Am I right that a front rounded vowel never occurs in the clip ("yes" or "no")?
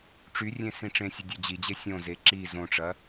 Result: no